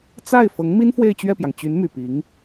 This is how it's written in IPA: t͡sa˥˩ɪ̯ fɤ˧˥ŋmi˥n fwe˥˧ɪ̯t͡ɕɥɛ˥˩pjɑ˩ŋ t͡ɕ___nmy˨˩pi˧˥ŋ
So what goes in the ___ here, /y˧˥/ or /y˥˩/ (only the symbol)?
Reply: y˧˥